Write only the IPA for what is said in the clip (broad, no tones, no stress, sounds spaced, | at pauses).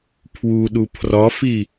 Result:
pʰ w u ɗ u pʰ r ɒ f i